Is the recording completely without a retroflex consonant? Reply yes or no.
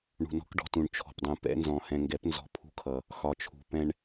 no